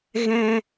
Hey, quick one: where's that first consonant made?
velum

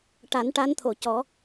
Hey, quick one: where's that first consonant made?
retroflex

